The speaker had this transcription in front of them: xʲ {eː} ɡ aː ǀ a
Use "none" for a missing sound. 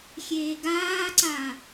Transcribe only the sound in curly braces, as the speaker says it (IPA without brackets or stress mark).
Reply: eː